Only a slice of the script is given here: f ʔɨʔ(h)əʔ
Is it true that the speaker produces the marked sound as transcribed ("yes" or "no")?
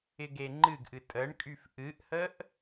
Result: yes